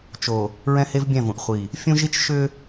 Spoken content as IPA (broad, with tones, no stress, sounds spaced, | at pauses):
t͡ʃ o˨ | ɹ ɛ̃˦ h e˦ v bʲ ɛ̃˦˨ v ũ˨ ʔ χʷ i˨ | fʲ ũ˦ ʒ i˦ t͡ʃ ʃ ʏ˦